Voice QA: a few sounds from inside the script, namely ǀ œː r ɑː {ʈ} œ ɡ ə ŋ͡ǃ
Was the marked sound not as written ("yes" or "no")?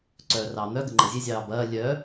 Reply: yes